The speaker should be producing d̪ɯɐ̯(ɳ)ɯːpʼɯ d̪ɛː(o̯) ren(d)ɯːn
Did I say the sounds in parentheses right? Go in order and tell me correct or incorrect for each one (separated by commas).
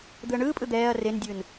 correct, incorrect, incorrect